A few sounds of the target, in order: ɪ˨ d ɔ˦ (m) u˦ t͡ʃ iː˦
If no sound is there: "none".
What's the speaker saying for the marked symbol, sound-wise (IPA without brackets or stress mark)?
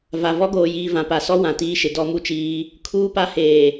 m